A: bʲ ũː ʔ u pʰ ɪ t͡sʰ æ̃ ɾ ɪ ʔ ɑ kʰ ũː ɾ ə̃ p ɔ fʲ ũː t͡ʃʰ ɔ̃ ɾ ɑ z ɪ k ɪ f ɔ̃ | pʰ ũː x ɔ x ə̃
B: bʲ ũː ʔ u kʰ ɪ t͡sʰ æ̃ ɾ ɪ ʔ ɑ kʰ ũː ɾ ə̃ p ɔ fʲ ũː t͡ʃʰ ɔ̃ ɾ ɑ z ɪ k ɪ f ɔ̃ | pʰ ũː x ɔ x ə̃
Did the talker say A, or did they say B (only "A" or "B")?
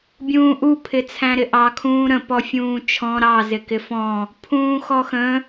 A